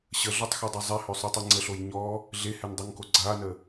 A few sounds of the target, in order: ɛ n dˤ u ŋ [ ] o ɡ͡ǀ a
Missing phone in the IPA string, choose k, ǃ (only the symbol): k